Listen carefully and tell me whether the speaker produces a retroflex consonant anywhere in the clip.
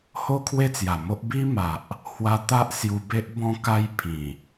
no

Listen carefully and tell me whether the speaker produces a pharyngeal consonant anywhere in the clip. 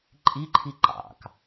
no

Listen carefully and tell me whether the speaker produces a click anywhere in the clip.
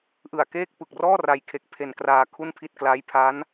no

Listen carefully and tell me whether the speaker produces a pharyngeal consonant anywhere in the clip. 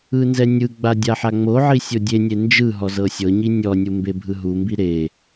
yes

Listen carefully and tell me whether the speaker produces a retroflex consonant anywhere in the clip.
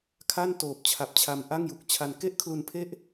no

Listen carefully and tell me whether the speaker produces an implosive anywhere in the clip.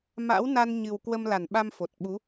yes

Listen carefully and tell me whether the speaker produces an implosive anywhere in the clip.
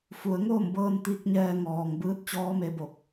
no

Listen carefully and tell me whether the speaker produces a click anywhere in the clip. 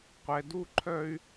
yes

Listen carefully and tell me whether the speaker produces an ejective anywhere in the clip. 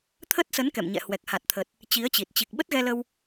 no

